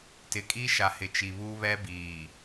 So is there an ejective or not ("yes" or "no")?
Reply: yes